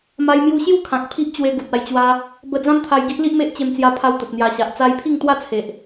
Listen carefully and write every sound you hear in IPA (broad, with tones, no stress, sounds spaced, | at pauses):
m a˧ j m j u˧ ɕ j u˥˧ kʰ ã˨ k̚ pʰ i˦ ʔ t͡ɕ w e˧ ɡ u˨ t̚ a˧ j t͡ɕ w a˦ | b ə˧ d͡z ã˦ m t̪ʰ a˧ j ɡ i˦ ʔ l i˦ ʔ m e˦ ʔ t͡ɕ e˧ m t͡s j a˧ pʰ a˧ w t̪ ə˨ t̚ n̪ j a˨˩ ɕ a˨ ʔ t͡s a˧ j pʰ i˥˧ ŋ t̪ w a˥˧ t͡sʰ e˨ ʔ